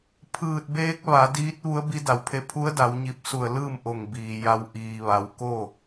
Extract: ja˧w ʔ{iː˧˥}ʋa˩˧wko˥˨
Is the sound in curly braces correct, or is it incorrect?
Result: incorrect